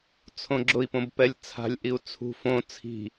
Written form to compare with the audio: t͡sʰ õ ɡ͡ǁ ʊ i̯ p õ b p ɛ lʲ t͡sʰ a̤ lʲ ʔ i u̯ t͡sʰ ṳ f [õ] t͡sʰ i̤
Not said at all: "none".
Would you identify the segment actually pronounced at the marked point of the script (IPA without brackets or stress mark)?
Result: õ